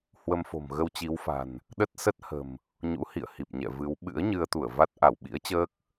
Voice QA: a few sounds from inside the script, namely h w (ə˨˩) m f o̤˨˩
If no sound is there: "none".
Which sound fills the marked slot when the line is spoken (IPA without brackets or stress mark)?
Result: ə˧